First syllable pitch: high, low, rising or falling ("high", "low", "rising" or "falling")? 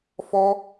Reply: high